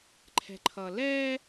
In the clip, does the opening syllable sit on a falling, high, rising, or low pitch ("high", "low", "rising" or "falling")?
low